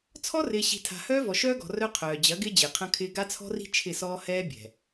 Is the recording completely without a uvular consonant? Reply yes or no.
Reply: no